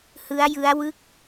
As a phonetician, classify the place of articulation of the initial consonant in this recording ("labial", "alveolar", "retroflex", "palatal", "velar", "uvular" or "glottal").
glottal